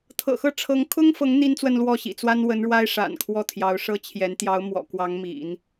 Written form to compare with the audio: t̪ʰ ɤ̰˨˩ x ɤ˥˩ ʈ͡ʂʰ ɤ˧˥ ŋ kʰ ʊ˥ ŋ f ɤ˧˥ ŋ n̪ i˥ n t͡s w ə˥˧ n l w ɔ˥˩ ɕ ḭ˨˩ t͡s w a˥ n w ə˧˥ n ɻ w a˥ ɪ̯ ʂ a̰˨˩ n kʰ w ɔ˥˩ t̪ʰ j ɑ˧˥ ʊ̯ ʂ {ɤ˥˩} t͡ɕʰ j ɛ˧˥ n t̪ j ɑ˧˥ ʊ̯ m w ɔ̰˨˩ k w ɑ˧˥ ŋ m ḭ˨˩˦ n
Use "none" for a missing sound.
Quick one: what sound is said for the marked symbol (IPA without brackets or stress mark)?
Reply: ɤ˥